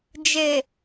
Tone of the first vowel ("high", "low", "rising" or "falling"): low